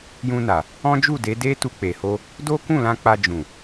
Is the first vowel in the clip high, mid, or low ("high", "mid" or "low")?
high